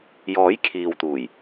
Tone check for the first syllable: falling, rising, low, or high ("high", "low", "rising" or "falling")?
rising